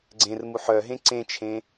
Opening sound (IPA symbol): ɡ͡ǀ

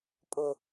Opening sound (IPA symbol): pʼ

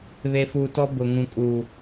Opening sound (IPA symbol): β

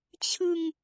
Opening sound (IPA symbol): t͡ɕʰ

